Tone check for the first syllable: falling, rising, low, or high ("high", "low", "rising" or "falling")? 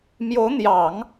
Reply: rising